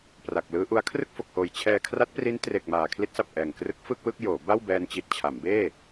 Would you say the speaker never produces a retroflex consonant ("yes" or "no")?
yes